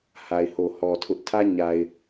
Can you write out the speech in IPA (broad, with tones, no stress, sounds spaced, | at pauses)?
h a˨ ɪ̯ h o˨ h ɔ˨ tʰ ʊ˦ ʔ tʰ ä˦ ɲ a˨ ɪ̯